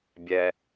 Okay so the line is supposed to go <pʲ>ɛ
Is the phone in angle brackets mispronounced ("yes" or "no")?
yes